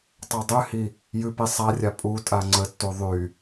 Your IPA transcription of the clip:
tˤ a dˤ ʉ h i | j ʉ p i sˤ a rʲ a pʼ u tʼ a ŋ͡ǀ ə tː u ðˤ y

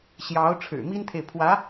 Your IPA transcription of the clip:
ɕ j ɑ˧˥ ʊ̯ ʈ͡ʂʰ ɻ̩˨˩ m i˥ n t̪ʰ e˨ ɪ̯ pʰ w ä˧˥

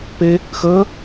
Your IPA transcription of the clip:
p e | x əː

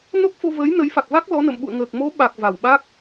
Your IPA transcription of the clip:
n o˦˥ k̚ f o˧ v əː˨˦ j n ə˨˦ j f a˨˩ k̚ v a˦˥ k̚ l ɔ˨˦ n ə̰˧˨ m ɓ ṵ˧˨ ə̯ ŋ əː˨˩ k̚ m o˨˦ ɓ a˨˩ k̚ v a˨˩ w ɓ a˦˥ k̚

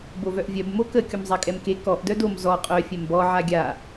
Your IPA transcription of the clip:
b o v œ ʔ vʲ œ b m o k ə kʲ o m zˤ a kʼ ɛ m k e k ɔ ʔ d œ d o m z ɔ qʼ œ fʲ ɛ m b ɔ ʕ a ɡʲ a

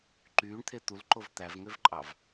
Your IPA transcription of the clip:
ǃ yː ɳ t̪ʰ e t̪ u l ǃ o v t̪ æ v ŋ ø v ǃʼ ɑ v

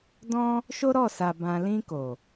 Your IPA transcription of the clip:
d ɔ̃˦ | ʃ o˦ ɾ ɔ˦˨ s a˨ b ã˨ l ĩ˧ k o˨

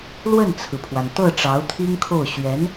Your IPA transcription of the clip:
l w ə˥˩ n t͡sʰ ɹ̩˩ pʰ w a˩ n t̪ ɤ˥˩ ʈ͡ʂ ɑ˧˥ ʊ̯ t̪ʰ i˥ ŋ kʰ o˥˩ ʊ̯ ɕ ɥ ɛ˧˥ n

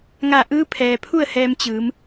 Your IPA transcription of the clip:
ŋ a˧˩ ʔ ɯː˧˥ pʰ ɛː˩ pʰ u˥˨ ə̯ h ɛː˧ m t͡ɕ ɯː˩˧ m

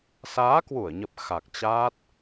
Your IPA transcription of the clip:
s aː˨˦ k w u˧˩ ə̯ ɲ ə˨˩ p̚ x a˨˩ k̚ t͡ɕ a˦˥ t̚

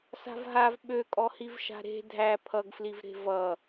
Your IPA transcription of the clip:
s a̤ v ɦ a v ɓ ø kʼ ɔ h i v ʃ a̤ ɾ e̤ dʱ æ pʰ ʌ ɡ f l i v ɾ e̤ v ʌ

